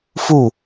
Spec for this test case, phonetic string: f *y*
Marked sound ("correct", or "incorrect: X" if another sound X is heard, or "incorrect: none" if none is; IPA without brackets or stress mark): incorrect: u